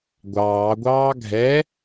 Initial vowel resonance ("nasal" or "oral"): oral